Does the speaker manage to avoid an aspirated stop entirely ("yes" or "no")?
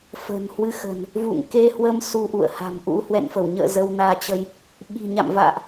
yes